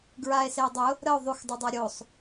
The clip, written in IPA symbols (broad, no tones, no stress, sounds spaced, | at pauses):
ɡ ɹ a e̯ s e o̯ dˤ ʊ | ɾ ə o̯ ðˤ ʉ x dˤ ʉ dˤ a ɾʲ o sˤ